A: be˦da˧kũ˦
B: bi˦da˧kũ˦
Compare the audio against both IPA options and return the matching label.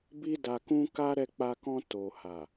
B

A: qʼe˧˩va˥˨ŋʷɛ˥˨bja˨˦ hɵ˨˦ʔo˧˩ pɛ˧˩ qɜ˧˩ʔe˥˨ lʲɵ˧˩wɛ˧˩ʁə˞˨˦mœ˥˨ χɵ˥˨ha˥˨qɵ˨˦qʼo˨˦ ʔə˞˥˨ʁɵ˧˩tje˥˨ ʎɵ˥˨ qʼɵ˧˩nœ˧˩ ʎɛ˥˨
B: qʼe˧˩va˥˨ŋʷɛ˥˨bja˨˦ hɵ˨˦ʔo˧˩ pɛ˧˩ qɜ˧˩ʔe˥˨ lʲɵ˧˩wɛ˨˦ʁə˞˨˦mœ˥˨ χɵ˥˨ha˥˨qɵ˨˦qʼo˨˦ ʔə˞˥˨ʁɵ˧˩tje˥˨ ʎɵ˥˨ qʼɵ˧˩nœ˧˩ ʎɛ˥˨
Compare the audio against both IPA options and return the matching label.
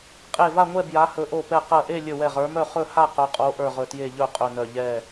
A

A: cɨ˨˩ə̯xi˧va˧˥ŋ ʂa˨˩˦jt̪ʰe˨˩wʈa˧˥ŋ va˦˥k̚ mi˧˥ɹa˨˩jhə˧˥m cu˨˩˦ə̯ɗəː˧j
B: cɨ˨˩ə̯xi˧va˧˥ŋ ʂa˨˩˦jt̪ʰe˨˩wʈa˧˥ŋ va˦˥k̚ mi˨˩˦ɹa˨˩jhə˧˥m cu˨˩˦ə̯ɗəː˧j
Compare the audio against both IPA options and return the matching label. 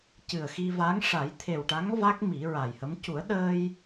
B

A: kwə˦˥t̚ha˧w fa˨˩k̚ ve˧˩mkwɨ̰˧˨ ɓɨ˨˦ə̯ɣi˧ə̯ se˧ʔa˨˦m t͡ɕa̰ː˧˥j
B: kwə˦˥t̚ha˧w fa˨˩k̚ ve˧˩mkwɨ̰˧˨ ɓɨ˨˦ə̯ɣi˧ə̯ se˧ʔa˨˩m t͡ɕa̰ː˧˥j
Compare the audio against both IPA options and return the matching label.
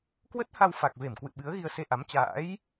A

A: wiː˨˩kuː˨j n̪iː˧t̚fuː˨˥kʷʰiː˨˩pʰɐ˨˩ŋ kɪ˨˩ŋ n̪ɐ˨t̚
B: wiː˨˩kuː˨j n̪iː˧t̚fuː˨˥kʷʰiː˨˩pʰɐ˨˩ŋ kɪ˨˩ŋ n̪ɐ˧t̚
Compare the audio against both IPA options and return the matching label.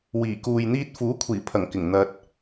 B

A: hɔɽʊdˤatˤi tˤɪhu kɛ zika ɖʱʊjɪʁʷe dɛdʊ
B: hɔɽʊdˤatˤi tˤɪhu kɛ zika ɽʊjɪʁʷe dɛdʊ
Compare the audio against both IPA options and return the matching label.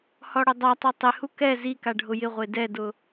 A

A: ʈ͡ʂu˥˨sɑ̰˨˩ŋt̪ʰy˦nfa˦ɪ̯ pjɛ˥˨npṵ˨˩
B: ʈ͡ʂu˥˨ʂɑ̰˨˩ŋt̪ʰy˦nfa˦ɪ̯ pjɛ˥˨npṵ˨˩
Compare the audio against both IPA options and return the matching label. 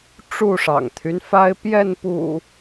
B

